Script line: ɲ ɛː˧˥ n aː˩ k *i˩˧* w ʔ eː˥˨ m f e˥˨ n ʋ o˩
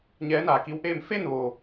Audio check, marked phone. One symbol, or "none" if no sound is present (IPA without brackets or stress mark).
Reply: i˧˥